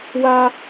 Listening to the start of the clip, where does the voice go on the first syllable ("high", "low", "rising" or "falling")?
high